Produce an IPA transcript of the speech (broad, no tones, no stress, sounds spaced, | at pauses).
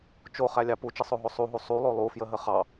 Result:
t͡ʃ o χ æ lʲ ɑ p u t͡ʃ ə sˤ o ɦ o sˤ u ɦ u sˤ u lˠ o lˠ u f j ə ɦ ə χ ɑ